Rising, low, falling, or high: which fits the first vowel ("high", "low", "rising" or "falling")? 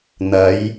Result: rising